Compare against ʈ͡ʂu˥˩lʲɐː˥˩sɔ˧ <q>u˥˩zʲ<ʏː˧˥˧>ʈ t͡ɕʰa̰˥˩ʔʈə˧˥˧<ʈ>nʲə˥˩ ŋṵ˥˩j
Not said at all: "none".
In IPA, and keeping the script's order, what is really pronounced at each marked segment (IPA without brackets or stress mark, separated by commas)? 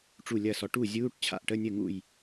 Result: ʈ, uː˧˥˧, none